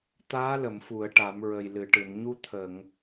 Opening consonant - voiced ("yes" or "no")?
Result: no